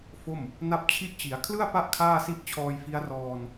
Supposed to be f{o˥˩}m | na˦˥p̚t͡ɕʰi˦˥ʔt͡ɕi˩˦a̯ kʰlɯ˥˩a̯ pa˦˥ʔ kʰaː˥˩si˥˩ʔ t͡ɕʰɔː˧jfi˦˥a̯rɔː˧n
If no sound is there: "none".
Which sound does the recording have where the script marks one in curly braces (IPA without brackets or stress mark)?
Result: o˥˩